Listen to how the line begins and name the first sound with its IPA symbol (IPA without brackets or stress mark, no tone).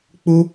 k͡p